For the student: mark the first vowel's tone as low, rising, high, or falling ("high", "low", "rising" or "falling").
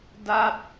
falling